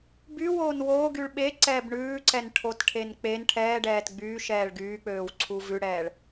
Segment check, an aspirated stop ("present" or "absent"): present